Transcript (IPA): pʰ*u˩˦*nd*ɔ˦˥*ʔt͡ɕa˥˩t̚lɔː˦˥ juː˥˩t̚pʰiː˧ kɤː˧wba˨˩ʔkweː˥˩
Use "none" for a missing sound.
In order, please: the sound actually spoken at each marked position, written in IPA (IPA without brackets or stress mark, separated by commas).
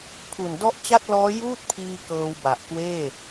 u˨˩, ɔ˦˥